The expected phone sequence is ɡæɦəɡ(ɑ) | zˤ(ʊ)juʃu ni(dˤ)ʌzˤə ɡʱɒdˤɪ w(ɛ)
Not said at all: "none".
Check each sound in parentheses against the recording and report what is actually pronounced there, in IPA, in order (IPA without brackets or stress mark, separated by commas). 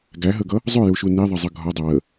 ʌ, ʊ, ðˤ, ə